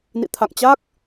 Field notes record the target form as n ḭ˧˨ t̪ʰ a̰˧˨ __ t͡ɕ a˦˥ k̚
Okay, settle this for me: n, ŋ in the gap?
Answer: ŋ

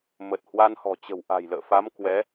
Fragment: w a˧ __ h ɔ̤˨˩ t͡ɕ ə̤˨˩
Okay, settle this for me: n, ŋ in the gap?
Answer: n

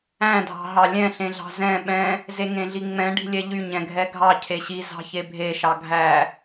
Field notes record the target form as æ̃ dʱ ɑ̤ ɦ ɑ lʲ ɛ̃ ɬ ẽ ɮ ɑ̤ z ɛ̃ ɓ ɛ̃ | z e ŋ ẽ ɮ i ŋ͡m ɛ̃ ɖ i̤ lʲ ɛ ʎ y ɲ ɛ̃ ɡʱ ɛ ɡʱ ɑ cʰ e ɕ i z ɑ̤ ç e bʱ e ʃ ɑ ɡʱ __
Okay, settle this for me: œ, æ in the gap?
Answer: æ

